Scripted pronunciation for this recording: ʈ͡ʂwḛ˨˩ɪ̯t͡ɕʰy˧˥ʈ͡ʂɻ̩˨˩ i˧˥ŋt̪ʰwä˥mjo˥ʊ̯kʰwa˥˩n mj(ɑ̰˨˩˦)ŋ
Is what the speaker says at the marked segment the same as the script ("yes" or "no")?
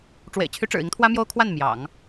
yes